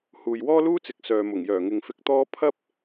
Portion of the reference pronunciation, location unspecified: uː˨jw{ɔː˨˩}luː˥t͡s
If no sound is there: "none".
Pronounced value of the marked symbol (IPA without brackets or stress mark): ɔː˥